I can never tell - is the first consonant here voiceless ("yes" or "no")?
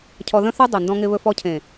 yes